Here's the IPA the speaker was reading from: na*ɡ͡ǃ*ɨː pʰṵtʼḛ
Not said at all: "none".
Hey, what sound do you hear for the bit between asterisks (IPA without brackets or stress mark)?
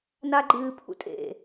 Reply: ɡ͡ǃ